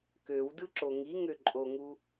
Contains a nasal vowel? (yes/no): no